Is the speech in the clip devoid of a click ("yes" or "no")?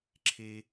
no